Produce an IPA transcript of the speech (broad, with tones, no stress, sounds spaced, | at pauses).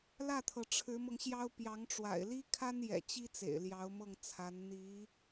l ä˥˩ t̪ʰ ɤ˩ ʈ͡ʂʰ ɻ̩˧˥ m ɤ˧ ŋ ɕ j ɑ˥ ʊ̯ p j ɑ˧˥ ŋ ʈ͡ʂ w a̰˨˩ ɪ̯ l i˥ kʰ a˥ n j ɛ̰˨˩ t͡ɕ i˥ t͡s ḛ˨˩ ɪ̯ l j ɑ˧˥ ʊ̯ m ɤ˥˩ ŋ t͡sʰ a˧˥ n n̪ i˧˥